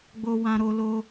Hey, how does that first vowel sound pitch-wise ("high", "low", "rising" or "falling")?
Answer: high